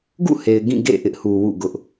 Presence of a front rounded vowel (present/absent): absent